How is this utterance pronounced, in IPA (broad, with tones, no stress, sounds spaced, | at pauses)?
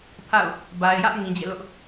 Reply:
pʰ a̰˦˨ ʊ̯ | b a˨ ɪ̯ j ä˦ ʔ ŋ ĩ˨ d͡ʑ ɛ̰˦˨ l ʊ˦ ʔ